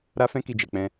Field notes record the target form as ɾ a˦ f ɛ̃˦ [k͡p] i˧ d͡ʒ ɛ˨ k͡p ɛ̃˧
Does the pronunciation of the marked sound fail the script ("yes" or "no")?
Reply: yes